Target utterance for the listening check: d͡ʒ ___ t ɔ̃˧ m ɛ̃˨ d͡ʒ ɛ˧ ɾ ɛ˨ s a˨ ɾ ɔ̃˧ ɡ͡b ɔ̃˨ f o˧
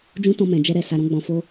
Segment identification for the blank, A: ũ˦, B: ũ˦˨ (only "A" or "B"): A